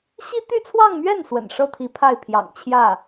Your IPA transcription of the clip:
ɕ i˥ t̪ y˥˧ t͡sʰ w ɑ˥˧ ŋ m ɥ ɛ˥˩ n s w ə̰˨˩ n ʂ ɤ˥˩ t̪ʰ i˧˥ pʰ a˥˩ ɪ̯ pʰ j ɑ̰˨˩ ŋ t͡ɕʰ j ä˥˩

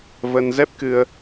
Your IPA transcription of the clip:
v ə˧ n z ɛ˦˥ p̚ k ɨ˧ ə̯

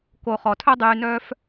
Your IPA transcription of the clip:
k o˨ χ ɔ˨ tʰ œ˦ dˤ yː˨ n œː˧ f

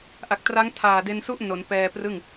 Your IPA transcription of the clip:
ʔ a˨˩ k̚ t r a˦˥ ŋ tʰ aː˨˩ d e˧ n s u˥˩ ʔ n o˩˦ n p ɛː˧ p r ɯ˥˩ ŋ

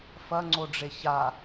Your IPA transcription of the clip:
f ɐ ŋ͡ǀ o ɖ͡ʐ e ç a

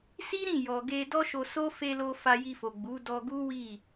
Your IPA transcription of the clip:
s i˦ ɾ ĩ˦˨ j ɔ˨ ɡ e˧ d ɔ˦ ʃ o˧ s o˦ f e˧ l o˧ f a˧ j i˧ f o˨ ɡ͡b u˨˦ d ɔ˧ ɡ u˦ w i˦˨

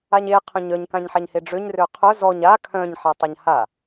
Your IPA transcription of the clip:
a ɲ e qʰ œ̃ ɲ œ ɲ k ã ɲ ħ a ɲ h e ɖ͡ʐ ø ɲ r ø qʰ œ z ɔ ɲ a kʰ œ̃ ɲ ħ a tˤ a ɲ h a

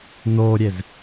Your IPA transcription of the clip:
n̪ oː ɾʲ e z

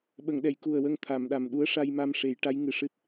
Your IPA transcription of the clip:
ɓ ə˨˩˨ ŋ ɗ ɛ˨˩˨ j k u˨˩ ə̯ w ə˧ ŋ t̪ʰ a˨˩˨ m ɗ a˨˩ m ɗ u˧˥ ə̯ ʂ a˧ j m a˧ m ʂ e˨˩˦ j ʈ a˧˥ j ŋ ɨ˨˩ ʂ ɨ˦˥ t̚

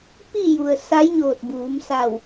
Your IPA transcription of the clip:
p i˥˨ j u˩ ə̯ s a˧˥ j ɲ oː˧˩ t̚ b uː˩˧ m s a˧˩ w

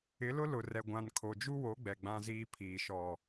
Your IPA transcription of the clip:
ɪ˨˦ l ʊ˦ l ʊ˨ r ɛ˨ ɡʷ ã˨ n kʰ o˨ d͡ʒ u˦ w o˨˦ ɡ͡b ɛ˨ ɡ͡b ã˦ z iː˦ pʰ iː˨ ʃ ɔ˨

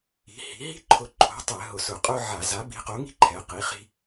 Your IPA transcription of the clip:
i̤˨˥ h i̤˨˥ ɦ i̤˥ ǃʰ ʊ˨˥ ǃʰ o̤˨˥ tˤ ɛ˧˩˧ ɦ ʊ˧˩˧ s ʊ˧˩˧ qʼ ʊ˥ ʕ a˧˩˧ z a˨˥ b i̤˨˥ q o˨˥ ŋ i̤˥ ǃʰ ɛ˨˥ q i˨˥ χ i̤˥

